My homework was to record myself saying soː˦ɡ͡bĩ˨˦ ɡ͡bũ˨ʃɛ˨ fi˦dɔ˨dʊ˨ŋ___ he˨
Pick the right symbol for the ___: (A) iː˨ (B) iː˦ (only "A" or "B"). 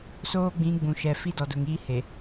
B